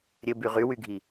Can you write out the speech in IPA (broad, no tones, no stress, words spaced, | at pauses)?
ɾʲɘby ʁywyɡʱi